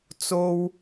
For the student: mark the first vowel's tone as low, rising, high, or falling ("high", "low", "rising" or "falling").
high